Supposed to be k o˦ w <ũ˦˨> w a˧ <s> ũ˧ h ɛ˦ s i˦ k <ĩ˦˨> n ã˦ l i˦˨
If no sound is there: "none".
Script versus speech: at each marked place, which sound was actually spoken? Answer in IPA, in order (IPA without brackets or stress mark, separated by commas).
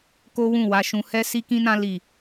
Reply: ũ˦˨, ʃ, ĩ˦